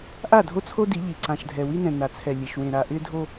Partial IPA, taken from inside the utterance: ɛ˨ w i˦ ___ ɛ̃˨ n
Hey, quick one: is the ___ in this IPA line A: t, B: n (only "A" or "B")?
B